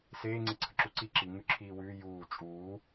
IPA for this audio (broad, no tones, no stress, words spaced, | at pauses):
seː ŋ͡ǀeǀʰəǁuǀi ǁi ŋʉǁʰiːwʉː juː t͡ʃʼuː